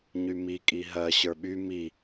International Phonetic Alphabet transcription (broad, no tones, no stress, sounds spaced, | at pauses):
ɲ y m i kʼ i ɦ ɜ ɕ ə˞ ɓ y m i